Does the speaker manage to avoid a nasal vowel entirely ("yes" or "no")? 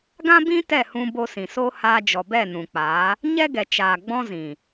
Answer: no